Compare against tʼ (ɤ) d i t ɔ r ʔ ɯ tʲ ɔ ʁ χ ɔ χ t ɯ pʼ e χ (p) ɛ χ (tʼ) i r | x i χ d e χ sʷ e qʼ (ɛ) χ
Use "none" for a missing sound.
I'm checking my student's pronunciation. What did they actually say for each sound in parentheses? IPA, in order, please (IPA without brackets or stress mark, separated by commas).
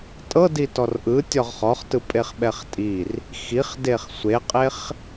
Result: ɤ, ɓ, tʼ, e